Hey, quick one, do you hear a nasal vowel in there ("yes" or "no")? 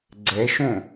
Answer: yes